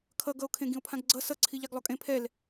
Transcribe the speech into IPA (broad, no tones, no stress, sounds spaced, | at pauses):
kʰ ʌ ɡ ʌ o̯ kʰ ẽ ɡ ĩ o̯ pʰ ã ɡ ɡ͡ǀ ʌ s ʌ ǀʰ i ʎ a ɡ lˠ o kʼ ẽ pʰ ɛ l